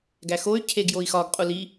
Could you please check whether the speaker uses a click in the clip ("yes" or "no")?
no